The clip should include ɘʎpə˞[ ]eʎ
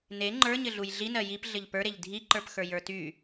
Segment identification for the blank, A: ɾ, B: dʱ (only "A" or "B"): A